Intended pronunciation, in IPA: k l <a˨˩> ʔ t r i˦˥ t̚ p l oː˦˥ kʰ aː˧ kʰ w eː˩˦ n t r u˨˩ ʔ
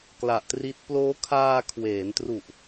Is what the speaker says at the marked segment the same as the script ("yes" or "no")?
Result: yes